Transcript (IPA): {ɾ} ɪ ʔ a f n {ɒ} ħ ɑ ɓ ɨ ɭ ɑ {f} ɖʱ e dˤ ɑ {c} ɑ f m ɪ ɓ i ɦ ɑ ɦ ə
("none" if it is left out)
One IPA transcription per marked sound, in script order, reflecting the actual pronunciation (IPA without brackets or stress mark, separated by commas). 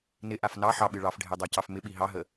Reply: n, ɑ, f, c